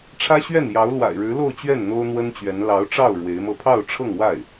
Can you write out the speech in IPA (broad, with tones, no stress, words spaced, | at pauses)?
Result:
ʈ͡ʂʰä˥ɕɥɛ˥˩njɑ˧˥ʊ̯ lwa̰˨˩ɪ̯ɻɻ̩˧˥lo˥˧ʊ̯t͡ɕɥɛ˥˩n n̪o˥ʊ̯n̪wə˥nt͡ɕɥɛ˧˥n lɑ˧˥ʊ̯ʈ͡ʂɑ˥˩ʊ̯ ɻwe˧˥ɪ̯mɤ˥˧ pʰɑ˥˧ʊ̯ʈ͡ʂʰɤ˥˧ŋwa˥˩ɪ̯